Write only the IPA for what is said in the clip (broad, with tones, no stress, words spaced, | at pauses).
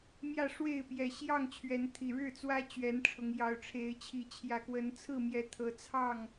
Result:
mjä˥˨ ʂwe˥˨ɪ̯pjɛ˨˩ɕjɑ˥˨ŋ t͡ɕʰɥɛ˨˦nt̪ʰi˨˩ ɻɻ̩˥˨t͡swä˦ t͡ɕɥɛ˨˦nʈ͡ʂʰʊ˨˦ŋ jɑ˨˩ʊ̯ʈ͡ʂʰe˨˦ɪ̯t͡ɕʰi˨˦ t͡ɕʰjä˨˩kwə˨˦nt͡sʰɹ̩˥˨mjɛ˨˦ t̪ʰɤ˨˦t͡sʰɑ˥˨ŋ